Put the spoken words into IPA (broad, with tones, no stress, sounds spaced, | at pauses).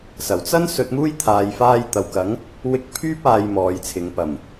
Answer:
s ɐ˨˩ w t͡s ɐ˥ n s ɵ˧ t̚ m uː˥ j t̪ʰ aː˨ j f aː˧ j t̪ ɐ˨ w k ɐ˨˥ ŋ | w ɪ˧ k̚ pʰ yː˥ p̚ aː˨ j m ɔː˨ j t͡sʰ ɪ˨ ŋ p ɐ˨˩ m